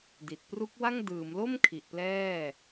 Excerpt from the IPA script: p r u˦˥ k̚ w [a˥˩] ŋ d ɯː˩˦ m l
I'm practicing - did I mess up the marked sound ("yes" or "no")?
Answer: no